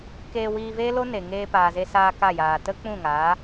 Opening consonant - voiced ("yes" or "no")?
no